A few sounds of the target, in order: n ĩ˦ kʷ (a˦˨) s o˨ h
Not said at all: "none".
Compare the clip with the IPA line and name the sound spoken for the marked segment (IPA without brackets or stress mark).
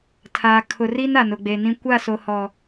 a˦˨